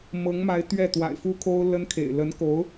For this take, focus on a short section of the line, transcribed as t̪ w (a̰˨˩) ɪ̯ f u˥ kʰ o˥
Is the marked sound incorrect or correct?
correct